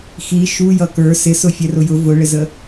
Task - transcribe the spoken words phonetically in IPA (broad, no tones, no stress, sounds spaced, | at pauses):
x i ʃ u j ʌ k ə˞ s ɪ s ʊ fʲ ɛ r ʊ j ʊ v ʊ ɭ ɪ z ə